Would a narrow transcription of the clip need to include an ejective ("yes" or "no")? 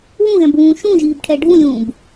no